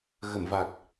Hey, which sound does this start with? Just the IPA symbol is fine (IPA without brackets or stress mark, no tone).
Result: ɣ